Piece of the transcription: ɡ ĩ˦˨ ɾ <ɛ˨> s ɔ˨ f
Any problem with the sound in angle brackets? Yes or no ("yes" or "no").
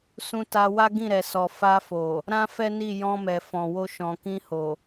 no